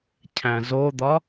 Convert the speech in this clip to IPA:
cʰ æ̃ z o d̪ ɒ

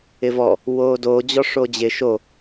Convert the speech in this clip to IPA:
ɪ v ɔ | w oː d oː d͡ʑ ɔ ʂ o d͡ʑ ɪ ʃ o

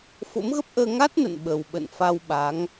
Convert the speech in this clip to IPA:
f o̰˧˥ m ɣ ə˦˥ p̚ ʔ əː˧ ŋ a˦˥ t̚ n ə̰˧˨ n ɓ ə˨˩ w ɓ ə̰˧˨ n f a˧ w ɓ a˨˦ ŋ

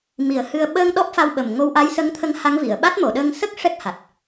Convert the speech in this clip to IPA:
m i˨˩˦ ə̯ h ɨ˧ ə̯ ɓ əː˧ ŋ ɗ ɔ˦˥ p̚ f a˧ w ɓ ə˨˩ m ŋ o˧ w ʔ a˧˥ j s ə˧˥ ŋ t̪ʰ ə˧˥ ŋ h a˧˥ ŋ v i˨˩˨ ə̯ ɓ a˦˥ t̚ m o˨˩˨ ɗ əː˧ ŋ s ə˦˥ k̚ ʂ ɛ˦˥ k̚ h a˨˩ t̚

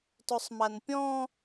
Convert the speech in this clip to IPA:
t o sˤ m a n pʲ ɔ̃

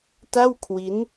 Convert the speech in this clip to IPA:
t a˥˩ w kʰ w i˦˥ n

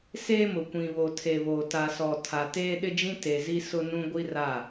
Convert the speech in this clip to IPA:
s eː˦ m ʊ˨ kʷ ĩ˨ β o˨ tʰ e˨ β oː˨ t a˨ s ɔ˨ tʰ a˨ t eː˦ ɗ ɪ˦ d͡ʒ ĩ˦ t e˨ z i˦ s ʊ˦ n ũ˦ ɡʷ i˦ r a˦˨

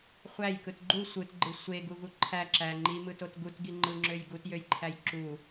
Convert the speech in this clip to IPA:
χʷ æ j k ɯ t ɡ͡ǃ u sʷ ɯ t ɡ͡ǃ ɯ sʷ e ɡ u v u ǃʰ æ ǁ æ ŋ͡ǃ i m ɯ t o t ɡ u t ɡ i ŋ͡ǃ ɯ ŋ͡ǁ ø j ɡ u t j ø j ǃʰ æ j ǁ u

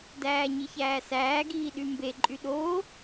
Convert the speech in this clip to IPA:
d æː ɲ i ç æː s æː ɡ iː ɗ y m b e ǃʼ y ɗ oː

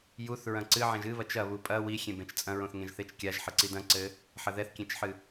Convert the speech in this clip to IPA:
j u θ ɹ ɐ̃ ǀ ɨ ʕ ẽ ʒ ɨ β ɐ t͡ʃ ɐ β u pʼ ɐ w i xʲ ẽ b ẽ t͡ʃ t͡sʼ ɐ̃ ɹ õ θ ŋ ẽ ʒ θ e t͡ʃ kʲ a ʒ ħ ɘ ǀ i d ɐ̃ ǀ ɘ | ħ ɐ ð ɛ θ kʲ ẽ t͡ʃ ħ ɨ

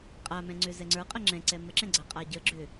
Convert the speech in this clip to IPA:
qʼ a m ɛ̃ ŋ͡ǀ ʏ z ɛ ŋ͡ǀ ə˞ qʼ ə ŋ͡ǁ ɛ̃ ǀ ɛ m ə ǁ ɛ̃ ɡ͡ǀ a qʼ a ɟ ə ɡ͡ǁ ʏ

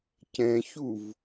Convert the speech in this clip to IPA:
c ɛ̃ ç u v

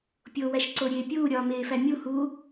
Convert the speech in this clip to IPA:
pʲ o w æ ʃ ǀ o ɾʲ eː pʲ uː ɾʲ ɒː m eː f æ mʲ u h u

